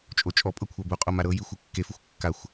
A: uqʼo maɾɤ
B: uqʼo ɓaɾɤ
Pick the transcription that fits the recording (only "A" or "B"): A